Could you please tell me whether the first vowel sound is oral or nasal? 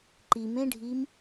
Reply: oral